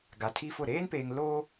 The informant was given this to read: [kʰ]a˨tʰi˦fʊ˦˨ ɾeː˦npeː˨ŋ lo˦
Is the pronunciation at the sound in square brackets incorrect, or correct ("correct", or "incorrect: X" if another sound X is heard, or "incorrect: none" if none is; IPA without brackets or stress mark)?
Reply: incorrect: ɡ